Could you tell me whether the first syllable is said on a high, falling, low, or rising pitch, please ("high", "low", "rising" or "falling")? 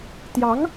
rising